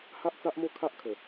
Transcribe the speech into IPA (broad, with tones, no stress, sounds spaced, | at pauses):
h a˦ ʔ t͡s a˦ ʔ m o˥˧ kʰ a˦ ʔ kʰ ə˨˩